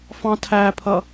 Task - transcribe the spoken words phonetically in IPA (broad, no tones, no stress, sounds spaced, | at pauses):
f ɑ̃ tʰ æ pʰ ʌ